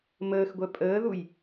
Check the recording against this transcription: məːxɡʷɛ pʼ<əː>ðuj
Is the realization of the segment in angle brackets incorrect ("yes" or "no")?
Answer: no